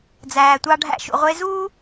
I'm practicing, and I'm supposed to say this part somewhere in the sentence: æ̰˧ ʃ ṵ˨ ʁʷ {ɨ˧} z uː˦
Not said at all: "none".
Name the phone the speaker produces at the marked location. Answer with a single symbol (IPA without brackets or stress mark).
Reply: e˧